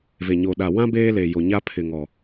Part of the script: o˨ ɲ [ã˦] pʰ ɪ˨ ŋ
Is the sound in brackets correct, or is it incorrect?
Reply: incorrect: a˦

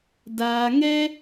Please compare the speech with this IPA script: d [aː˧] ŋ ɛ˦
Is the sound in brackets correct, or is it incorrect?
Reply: correct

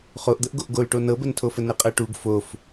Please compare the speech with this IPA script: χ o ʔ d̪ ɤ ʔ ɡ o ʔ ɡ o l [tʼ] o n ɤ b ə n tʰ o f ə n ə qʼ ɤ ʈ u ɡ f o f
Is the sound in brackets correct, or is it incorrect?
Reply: incorrect: ʈ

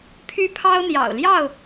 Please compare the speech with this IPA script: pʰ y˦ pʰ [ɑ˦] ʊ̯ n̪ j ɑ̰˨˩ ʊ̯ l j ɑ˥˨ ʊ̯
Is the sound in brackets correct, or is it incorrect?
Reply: correct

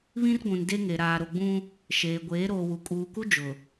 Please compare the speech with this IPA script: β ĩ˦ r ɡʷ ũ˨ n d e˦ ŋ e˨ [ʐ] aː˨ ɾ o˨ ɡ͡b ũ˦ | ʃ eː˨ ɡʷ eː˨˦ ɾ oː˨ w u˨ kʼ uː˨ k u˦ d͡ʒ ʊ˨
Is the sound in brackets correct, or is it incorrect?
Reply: incorrect: ɾ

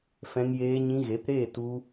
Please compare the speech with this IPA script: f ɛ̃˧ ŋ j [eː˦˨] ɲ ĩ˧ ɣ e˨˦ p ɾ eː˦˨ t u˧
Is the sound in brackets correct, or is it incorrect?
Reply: incorrect: eː˧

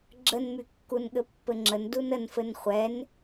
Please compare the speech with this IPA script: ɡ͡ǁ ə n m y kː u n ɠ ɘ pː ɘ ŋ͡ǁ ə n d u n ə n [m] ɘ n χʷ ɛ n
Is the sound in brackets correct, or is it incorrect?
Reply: incorrect: f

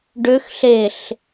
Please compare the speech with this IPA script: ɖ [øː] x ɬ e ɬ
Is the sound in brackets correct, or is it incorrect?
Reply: incorrect: ø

